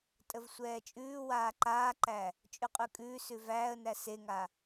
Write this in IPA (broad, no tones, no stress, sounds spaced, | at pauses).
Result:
tʼ ə v sʷ ɛː t͡ʃʼ ʉː w aː ǃ aː ǃ æ | t͡ʃʼ ʉ qʼ ʉ kʼ ʉː s ʉ v æː ə̯ n æ s e ŋ a